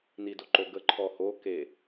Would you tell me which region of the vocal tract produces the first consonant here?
tongue tip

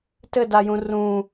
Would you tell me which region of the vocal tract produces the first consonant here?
tongue tip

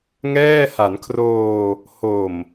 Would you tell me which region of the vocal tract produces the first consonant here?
velum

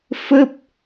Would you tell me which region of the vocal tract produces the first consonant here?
lips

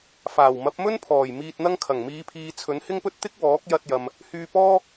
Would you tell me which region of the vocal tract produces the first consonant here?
lips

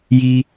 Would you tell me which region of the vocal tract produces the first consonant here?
palate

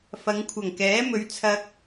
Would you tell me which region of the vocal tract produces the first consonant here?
lips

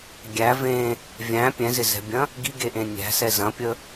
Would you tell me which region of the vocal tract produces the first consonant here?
velum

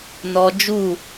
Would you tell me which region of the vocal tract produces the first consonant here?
tongue tip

